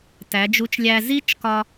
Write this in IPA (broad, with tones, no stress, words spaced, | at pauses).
tæ˩˧d͡ʒu˨˥t͡ʃlʲæ˧ zi˦˥t͡ʃkɒ˧